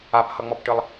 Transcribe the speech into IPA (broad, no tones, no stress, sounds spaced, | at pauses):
a p h ʌ ŋ͡m ɔ p ʈ ɨ lˠ